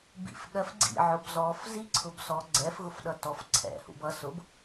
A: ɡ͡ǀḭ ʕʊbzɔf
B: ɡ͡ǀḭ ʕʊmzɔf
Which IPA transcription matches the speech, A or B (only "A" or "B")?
A